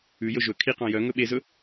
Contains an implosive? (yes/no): yes